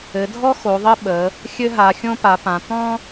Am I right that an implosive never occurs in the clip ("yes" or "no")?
no